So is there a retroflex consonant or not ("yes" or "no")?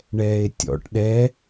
yes